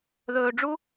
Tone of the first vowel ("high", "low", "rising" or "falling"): low